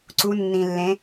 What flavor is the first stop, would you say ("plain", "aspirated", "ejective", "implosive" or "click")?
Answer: click